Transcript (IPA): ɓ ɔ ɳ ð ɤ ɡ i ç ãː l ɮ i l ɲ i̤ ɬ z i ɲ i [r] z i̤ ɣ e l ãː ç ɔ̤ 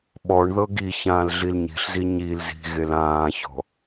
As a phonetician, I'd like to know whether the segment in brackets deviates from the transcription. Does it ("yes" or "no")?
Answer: yes